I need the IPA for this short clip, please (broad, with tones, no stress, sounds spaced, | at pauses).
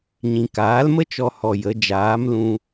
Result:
ɲ ĩ˨ k aː˨˦ l m ə˦ t͡ʃ ɔ˧ h ɔ˧ j ə˨˦ d͡ʒ aː˨˦ m l ũ˧